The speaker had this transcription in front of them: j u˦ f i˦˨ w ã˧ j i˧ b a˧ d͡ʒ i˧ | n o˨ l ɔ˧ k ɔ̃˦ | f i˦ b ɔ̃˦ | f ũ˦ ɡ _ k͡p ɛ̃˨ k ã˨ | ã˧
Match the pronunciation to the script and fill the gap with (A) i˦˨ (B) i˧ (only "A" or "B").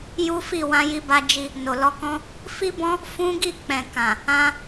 A